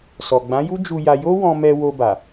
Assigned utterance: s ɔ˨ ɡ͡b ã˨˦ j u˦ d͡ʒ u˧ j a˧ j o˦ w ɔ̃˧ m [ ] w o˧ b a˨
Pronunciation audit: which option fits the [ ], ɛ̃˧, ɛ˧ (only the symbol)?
ɛ˧